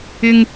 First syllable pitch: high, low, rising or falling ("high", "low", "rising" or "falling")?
high